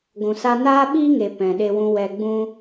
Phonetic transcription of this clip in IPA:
ɡʷ ũ˨ s a˧ n aː˦ ɓ iː˦ ŋ e˨ p ɛ̃˨ ɗ e˧ w ũ˧ w ɛ˧ ɡ͡b ũ˦

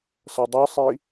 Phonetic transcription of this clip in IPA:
s ʌ dˤ ɯ sˤ i

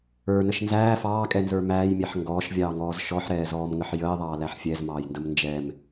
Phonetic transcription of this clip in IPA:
ə˞ n ə ʃ n z æː f ɑː kʼ ɛ n z ə˞ m æː j mʲ ɛ ħ ŋ ɡ ɔː ʃ vʲ ɑː ŋ ɔː z ʃ ɔ ħ ɾ ɛː z ɔː m ŋ ə ħ j əː ðˤ ɑː l æ ħ fʲ ɛ z m ɑː j n d ə m n d͡ʒ ɛ m

